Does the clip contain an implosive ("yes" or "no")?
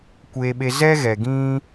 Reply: yes